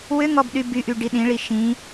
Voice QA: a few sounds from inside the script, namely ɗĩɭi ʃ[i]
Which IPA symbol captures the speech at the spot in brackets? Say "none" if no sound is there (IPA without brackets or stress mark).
ĩ